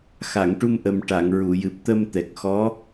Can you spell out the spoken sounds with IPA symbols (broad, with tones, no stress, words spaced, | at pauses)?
xa˨˩˨ŋʈu˧mʔə˨˩m ʈa˨˩˨ŋɹu˨˩˨jɨ˨˩p̚ t̪ə˧mt̪ɛ˨˩k̚xɔ˧˥